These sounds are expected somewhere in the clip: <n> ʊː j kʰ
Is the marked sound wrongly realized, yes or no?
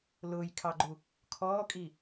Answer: yes